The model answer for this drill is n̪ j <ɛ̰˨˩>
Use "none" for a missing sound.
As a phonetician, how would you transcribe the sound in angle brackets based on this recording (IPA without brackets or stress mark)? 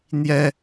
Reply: ɛ˦